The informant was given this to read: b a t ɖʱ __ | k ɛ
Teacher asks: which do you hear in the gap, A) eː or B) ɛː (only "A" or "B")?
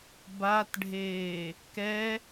A